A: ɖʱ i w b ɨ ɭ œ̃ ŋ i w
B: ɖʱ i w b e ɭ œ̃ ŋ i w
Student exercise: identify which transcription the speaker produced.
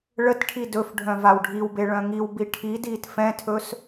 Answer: B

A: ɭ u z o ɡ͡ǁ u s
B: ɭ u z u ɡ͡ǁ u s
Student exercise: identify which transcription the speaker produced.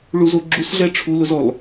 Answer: A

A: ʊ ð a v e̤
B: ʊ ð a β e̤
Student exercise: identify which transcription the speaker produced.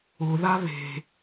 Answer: B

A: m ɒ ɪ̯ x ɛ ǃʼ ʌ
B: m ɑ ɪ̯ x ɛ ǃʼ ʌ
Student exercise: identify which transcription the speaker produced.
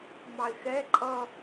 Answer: B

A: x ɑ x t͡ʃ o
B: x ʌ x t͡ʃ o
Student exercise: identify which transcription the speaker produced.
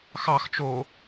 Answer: A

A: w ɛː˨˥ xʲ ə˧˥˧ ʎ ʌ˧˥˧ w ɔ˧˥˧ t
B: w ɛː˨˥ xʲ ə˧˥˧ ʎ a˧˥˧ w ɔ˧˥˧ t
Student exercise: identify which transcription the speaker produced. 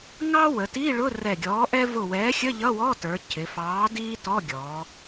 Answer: A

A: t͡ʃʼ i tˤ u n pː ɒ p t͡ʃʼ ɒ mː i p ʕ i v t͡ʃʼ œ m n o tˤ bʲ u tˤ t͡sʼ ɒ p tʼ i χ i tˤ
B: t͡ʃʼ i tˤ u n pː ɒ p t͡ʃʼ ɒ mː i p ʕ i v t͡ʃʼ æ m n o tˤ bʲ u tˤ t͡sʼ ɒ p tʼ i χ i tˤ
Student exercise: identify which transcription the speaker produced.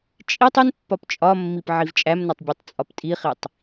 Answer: B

